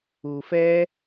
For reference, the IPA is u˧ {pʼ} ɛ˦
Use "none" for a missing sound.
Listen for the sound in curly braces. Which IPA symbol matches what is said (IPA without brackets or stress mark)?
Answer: f